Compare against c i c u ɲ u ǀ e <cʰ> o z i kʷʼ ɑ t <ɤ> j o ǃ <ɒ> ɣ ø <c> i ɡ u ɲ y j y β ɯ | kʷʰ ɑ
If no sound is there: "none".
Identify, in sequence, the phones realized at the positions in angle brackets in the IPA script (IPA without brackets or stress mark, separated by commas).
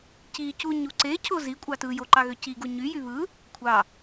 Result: cʰ, ɯ, ɑ, c